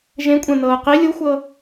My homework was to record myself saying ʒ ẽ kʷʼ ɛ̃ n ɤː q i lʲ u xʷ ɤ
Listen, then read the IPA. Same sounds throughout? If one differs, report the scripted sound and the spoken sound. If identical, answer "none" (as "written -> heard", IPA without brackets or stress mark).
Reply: none